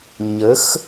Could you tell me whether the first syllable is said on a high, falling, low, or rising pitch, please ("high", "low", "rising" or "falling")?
rising